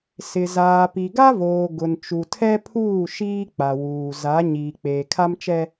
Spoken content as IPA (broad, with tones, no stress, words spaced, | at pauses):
sɪ˨ zaː˨pi˨ɡa˦voː˨ ɡʊ˨nt͡ʃu˨tʰɛ˦pʰuː˦˨ ʃiː˦k͡pa˨wuː˨ za˨˦ ɲiː˨k͡peː˨kʰa˦mt͡ʃɛ˦